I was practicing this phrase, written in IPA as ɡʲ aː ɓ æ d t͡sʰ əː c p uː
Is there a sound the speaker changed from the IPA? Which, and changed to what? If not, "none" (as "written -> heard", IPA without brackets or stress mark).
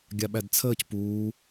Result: aː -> a